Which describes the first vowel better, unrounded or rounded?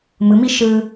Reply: unrounded